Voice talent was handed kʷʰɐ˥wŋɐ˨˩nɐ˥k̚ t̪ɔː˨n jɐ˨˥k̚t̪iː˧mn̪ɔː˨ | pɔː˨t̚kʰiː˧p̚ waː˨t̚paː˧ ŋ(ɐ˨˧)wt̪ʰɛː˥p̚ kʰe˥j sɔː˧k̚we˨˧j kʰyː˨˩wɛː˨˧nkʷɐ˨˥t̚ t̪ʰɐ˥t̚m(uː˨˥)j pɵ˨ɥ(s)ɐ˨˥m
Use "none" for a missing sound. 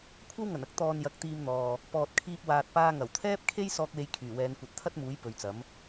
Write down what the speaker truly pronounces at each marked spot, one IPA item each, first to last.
ɐ˨˩, uː˨˥, t͡s

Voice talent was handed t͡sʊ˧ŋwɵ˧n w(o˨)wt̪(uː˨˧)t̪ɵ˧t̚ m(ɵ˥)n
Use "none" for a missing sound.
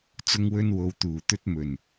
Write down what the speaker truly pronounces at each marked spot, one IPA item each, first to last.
o˨, uː˨˩, ɵ˨˩

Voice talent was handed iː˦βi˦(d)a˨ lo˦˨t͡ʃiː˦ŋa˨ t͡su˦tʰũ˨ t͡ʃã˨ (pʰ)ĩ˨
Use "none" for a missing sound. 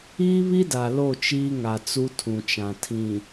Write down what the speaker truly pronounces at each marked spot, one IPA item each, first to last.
d, tʰ

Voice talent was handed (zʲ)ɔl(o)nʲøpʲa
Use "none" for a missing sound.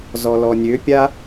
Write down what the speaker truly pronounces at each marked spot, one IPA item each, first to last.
z, ɔ

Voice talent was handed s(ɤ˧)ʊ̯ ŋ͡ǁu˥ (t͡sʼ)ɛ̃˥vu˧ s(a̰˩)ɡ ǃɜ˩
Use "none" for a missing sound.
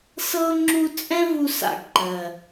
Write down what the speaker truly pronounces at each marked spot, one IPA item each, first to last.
ɤ˥, t͡sʼ, a̰˩

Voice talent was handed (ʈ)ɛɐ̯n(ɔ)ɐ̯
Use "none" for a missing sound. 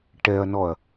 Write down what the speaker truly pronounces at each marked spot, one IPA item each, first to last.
ʈ, ɔ

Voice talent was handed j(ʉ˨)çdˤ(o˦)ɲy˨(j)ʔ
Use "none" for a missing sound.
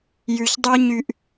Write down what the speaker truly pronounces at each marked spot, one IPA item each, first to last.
ʉ˨, o˦, none

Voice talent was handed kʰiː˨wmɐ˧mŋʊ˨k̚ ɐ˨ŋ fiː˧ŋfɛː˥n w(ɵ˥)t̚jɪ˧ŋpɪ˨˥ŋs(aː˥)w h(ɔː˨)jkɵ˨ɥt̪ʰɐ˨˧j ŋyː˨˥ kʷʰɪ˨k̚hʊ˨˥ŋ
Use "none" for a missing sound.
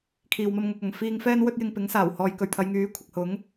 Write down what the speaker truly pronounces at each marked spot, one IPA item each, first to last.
ɵ˥, aː˨˩, ɔː˨

